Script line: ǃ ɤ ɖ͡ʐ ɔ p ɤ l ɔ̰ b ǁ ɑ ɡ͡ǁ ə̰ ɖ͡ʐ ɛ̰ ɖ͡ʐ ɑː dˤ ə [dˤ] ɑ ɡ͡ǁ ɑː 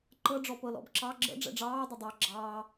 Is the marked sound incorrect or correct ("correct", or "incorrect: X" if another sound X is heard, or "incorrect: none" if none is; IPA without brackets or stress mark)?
correct